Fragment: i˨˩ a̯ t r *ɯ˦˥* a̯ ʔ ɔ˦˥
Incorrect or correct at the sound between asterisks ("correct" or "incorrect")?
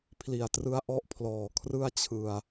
correct